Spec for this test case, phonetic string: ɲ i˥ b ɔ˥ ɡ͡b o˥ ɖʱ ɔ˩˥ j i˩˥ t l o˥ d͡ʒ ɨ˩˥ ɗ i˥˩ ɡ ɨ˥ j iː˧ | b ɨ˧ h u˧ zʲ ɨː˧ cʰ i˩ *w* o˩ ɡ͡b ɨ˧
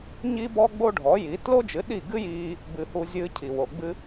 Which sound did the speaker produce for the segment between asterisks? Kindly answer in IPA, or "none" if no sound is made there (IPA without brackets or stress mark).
w